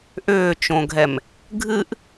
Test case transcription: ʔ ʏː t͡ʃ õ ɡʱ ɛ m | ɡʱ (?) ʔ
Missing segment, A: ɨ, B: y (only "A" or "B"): A